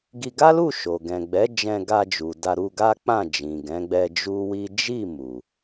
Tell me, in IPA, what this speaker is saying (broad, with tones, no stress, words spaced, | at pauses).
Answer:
ɡi˧ ɡa˦lu˦˨ ʃo˨ ɡɛ̃˨ɡ͡bɛ˨˦ d͡ʒɛ̃˧ɡa˧d͡ʒu˨ da˧ɾu˧ɡa˦ k͡pã˦˨d͡ʒĩ˨ ɡɛ̃˨˦ɡ͡bɛ˧ d͡ʒu˦wi˦ d͡ʒi˦˨ mu˨